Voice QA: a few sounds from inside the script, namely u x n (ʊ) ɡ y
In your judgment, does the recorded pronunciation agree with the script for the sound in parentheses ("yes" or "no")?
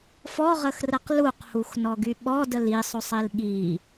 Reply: no